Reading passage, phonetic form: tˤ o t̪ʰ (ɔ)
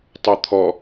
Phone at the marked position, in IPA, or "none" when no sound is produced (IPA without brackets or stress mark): ɔ